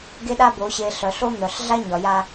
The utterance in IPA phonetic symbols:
ɡ e˦ ɗ a˦ b o˨˦ ɕ e˨ ɬ œ˨ ɬ o˦ n̪ œ˨ ɬ ɮ a˦ ɲ ɒ˨ j a˦

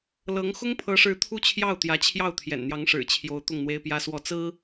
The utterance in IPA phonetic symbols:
l ɤ˧˥ ŋ x ʊ˥ ŋ pʰ ɤ˧˥ ʂ ɻ̩˧˥ t̪ʰ u˥ t͡ɕʰ j ɑ˥˩ ʊ̯ t̪ j ä˧˥ t͡ɕʰ j ɑ˥˩ ʊ̯ t̪ʰ j ɛ̰˨˩ n n̪ j ɑ˧˥ ŋ ʂ ɻ̩˨˩ t͡ɕʰ j o˧˥ ʊ̯ t̪ ʊ˥˩ ŋ n̪ w e˥ ɪ̯ p j ä˥ s w ɔ˥˩ t͡s ɹ̩˥

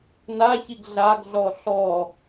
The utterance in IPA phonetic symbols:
n a ç i ɡ ɮ a ɡ ɮ ɔ ɬ ɔ

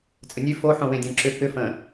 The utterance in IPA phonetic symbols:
t͡sʼ ə nʲ ʉ f o ħ õ w ẽ dʲ ã ǁ ʏ k ʏ f ə̃

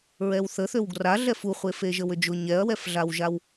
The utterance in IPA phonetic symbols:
ɹ ɛ w θ ə θ ø w ɡ r a ɮ ɛ f u χʷ e f e ʒ ə w ʏ d͡ʒ ʊ ɲ ɛ ɐ̯ w ɛ f ɮ a w ʒ a w

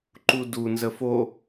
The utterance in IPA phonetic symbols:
ǃ u d u n z ə f o

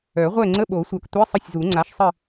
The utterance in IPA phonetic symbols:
œ˨˩˦ ʁʷ ɛ˦˨ ŋ͡ǀ ə˧˥˧ ɓ o˨˩˦ sʷ œ˨ k tʷ i˧˥˧ sˤ ə˦˨ sʲ z u˨˩˦ ŋ͡ǀ a˩˥ ʃ sˤ ə˦˨

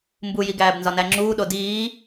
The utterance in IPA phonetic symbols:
m b u j i ɡ æː b n z ɒ n æ ŋ͡ǁ uː ɗ o d iː

